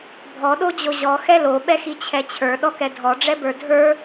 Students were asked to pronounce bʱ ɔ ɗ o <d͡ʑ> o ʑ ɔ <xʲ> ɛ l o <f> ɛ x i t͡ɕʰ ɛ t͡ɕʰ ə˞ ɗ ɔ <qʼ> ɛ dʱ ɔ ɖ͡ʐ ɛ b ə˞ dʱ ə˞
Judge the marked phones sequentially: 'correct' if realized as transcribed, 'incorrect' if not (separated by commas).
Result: correct, incorrect, incorrect, incorrect